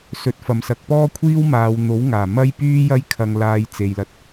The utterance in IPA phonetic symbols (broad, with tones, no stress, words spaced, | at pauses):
sɵ˨˥t̚fɐ˨msɐ˨˥k̚ pɔː˥kʷʰiː˥wmaː˨˧wn̪o˨˥w ŋaː˨˩mɐ˥jpyː˥jɐ˥j kʰɐ˧ŋlaː˧j t͡se˨jlɐ˧t̚